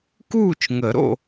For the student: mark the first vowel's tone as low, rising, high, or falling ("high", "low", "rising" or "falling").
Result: falling